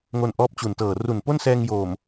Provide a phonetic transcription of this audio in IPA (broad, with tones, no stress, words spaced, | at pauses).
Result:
ŋo˧nʔɔː˦˥p̚t͡ɕu˨˩ntɤː˨˩ ru˨˩npo˥˩nsɛː˧ŋjoː˨˩m